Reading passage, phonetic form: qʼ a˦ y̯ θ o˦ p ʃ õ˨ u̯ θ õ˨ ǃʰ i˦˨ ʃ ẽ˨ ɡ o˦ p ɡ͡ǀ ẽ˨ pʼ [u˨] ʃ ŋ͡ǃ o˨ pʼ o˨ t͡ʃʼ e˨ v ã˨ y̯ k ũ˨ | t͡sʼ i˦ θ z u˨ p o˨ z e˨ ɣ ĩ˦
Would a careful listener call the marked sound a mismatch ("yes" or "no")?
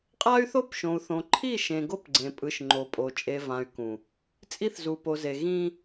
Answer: yes